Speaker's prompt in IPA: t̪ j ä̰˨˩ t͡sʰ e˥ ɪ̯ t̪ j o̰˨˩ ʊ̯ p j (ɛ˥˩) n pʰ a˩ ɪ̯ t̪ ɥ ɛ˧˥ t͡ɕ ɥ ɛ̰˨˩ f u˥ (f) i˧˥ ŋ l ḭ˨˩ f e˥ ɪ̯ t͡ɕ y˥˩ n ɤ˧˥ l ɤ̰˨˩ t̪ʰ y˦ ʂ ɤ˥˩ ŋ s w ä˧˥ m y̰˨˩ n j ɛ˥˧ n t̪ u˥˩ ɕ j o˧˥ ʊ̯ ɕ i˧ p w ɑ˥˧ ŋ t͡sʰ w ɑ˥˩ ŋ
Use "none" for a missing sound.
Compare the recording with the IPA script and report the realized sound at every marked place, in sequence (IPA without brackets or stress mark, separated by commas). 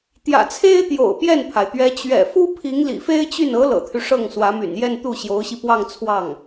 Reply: ɛ˥˩, pʰ